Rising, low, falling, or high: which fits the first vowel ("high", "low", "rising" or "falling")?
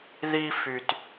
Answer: high